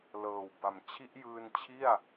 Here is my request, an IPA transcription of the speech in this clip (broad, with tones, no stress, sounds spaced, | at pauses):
l ɤː˨˩ w b a˨˩ m t͡ɕʰ i˦˥ ʔ j ɯː˧ n t͡ɕʰ i˥˩ a̯